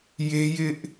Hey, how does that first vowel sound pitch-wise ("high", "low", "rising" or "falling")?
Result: high